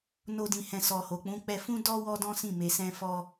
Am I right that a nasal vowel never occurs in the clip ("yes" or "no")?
no